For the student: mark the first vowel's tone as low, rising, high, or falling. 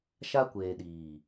high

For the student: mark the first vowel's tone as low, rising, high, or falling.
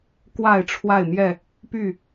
falling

